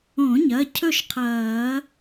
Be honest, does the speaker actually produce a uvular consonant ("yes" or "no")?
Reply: yes